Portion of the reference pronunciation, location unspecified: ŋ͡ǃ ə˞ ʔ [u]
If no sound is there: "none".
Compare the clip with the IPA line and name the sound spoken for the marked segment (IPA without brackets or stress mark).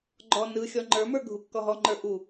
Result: u